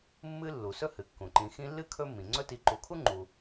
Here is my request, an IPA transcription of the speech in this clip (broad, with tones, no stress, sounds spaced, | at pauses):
mː ɨ˦ lː u˩ s ɵ˥ h ɨ˩ kː ũ˩ ǃ ĩ˨ x ĩ˦ lː ɨ˥ kʰ ɵ˦ mː ĩ˩ ŋ͡ǀ ɵ˦ t i˨ ǃ u˨ kʰ u˥ ŋ͡ǃ u˨